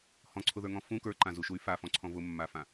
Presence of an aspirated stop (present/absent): present